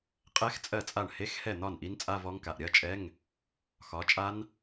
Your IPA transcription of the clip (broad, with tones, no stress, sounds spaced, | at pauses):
qʼ ɛ˦˥ x t͡sʼ ɜ˥˩ t͡sʼ a˥˩ ɳ h e˧˥˧ x h ɛ˥˩ n̪ ɒ˥˩ n ʔ i˦˥ n t͡sʼ a˧˥˧ v ɔ˦˥ ŋ k a˩˧˩ ʔ ɾʲ ɜ˧˥˧ t͡ʃʼ ɛ˧˥˧ ŋ | x ɒ˨˦ t͡ʃʼ a˦˥ n